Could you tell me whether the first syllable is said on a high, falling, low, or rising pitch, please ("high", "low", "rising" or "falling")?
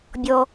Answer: high